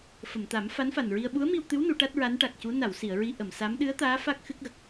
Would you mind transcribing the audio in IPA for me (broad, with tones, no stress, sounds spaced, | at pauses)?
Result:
f ə˨˩˨ m t̪ a˨˩˦ m f a˧˥ n f a˨˩ n ɹ i˧ ə̯ ɓ u˧˥ ə̯ m i˧ w t̪ ɨ˧˥ w n u˨˩˦ ʈ a˦˥ t̚ ɹ a˧˥ n ʈ a˨˩ k̚ c u˧˥ n a˨˩˨ w s i˨˩˨ ə̯ ɹ i˧ ʔ ə˨˩˨ m s a˧˥ m ɗ ɨ˧˥ ə̯ t̪ aː˧˥ f a˦˥ k̚ x ɨ˦˥ k̚ ɣ ə˨˩ k̚